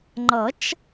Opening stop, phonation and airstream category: click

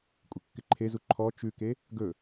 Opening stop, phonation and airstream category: ejective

